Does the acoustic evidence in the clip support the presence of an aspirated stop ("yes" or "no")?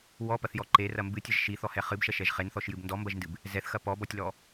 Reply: no